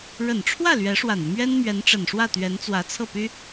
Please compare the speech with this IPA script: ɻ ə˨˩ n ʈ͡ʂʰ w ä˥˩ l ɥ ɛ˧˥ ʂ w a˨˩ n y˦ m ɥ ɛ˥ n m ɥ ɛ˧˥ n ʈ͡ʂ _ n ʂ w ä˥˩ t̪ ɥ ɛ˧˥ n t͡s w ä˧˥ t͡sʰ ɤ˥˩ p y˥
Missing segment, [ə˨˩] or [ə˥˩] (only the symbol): ə˨˩